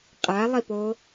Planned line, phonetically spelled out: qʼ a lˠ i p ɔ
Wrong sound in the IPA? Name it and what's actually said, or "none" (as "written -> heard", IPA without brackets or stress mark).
ɔ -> o